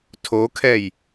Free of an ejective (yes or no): yes